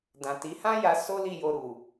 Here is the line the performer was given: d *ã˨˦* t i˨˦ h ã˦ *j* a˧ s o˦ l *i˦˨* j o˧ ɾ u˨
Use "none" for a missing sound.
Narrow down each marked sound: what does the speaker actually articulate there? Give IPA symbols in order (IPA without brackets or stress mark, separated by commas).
ã˨, j, i˦˨